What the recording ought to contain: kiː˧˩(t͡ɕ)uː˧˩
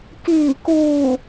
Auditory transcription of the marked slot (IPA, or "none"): k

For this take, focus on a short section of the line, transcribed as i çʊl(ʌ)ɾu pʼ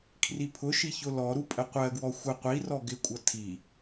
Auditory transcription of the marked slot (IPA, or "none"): ɔ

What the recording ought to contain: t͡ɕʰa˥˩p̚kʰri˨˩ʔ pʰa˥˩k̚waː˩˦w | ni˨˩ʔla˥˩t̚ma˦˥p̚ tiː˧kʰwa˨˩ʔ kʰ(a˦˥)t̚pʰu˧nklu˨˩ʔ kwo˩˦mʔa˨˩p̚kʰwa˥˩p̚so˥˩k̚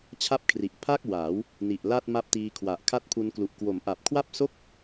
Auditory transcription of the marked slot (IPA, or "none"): a˦˥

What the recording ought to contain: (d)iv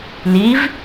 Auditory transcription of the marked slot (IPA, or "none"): n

